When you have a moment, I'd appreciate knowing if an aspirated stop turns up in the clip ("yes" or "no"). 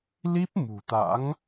no